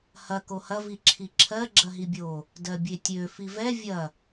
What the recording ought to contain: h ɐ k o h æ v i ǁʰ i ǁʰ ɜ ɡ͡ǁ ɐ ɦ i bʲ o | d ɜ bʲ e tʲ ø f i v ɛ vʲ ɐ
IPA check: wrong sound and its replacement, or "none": æ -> ɐ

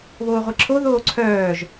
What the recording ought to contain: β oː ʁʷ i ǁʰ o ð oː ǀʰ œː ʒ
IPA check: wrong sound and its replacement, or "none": none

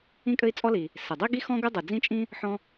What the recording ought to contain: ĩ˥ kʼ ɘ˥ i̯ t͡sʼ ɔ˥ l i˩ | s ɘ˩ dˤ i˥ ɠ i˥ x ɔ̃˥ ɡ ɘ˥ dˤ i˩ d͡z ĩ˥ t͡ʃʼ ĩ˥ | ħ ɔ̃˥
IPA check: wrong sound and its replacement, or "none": ɠ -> ɡ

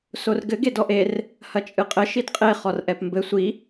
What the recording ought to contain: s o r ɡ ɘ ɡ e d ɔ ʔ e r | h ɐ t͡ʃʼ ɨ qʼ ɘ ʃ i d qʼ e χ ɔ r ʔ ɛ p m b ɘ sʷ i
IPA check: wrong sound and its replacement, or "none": none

